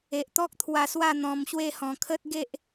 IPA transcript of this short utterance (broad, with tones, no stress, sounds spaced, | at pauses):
e˨ ʔ t̪ ɔ˦ k̚ t̪ʰ w a˧ s w a˥˧ n̪ ɔ̃˧ m ɕ w e˥˧ h ɔ̃˧ kʰ ə˦ t̚ ɡ e˦ ʔ